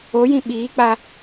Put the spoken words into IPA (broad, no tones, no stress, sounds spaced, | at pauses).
o j ĩ ɓ iː k͡p a